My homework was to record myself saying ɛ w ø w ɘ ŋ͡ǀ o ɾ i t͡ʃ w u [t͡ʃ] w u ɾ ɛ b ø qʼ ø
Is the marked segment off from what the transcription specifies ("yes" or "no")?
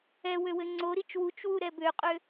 no